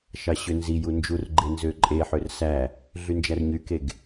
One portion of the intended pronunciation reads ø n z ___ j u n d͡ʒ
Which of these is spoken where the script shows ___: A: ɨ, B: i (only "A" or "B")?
B